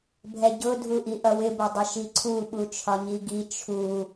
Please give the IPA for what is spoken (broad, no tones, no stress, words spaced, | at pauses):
bʱɛɟʊ dʱuʔiʔʌwɪ bʊdˤɪʃiǀʰu ɓut͡ʃʰɒɲiɡi t͡ʃʰu